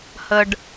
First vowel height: mid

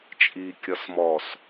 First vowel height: high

